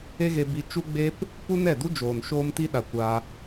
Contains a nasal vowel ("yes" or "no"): no